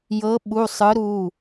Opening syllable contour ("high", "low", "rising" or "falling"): rising